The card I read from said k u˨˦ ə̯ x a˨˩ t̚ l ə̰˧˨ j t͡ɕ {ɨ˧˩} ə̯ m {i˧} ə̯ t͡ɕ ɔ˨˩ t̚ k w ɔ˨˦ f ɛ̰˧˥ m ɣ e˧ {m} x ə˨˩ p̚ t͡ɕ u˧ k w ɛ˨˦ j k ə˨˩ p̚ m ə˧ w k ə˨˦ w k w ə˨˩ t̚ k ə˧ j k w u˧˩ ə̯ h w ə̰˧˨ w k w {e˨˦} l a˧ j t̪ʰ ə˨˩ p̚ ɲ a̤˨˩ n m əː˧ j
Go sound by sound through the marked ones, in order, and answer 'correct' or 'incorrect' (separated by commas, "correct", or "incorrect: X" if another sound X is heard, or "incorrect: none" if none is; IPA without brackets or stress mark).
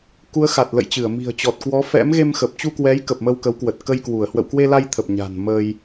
correct, incorrect: i̤˨˩, correct, incorrect: e˧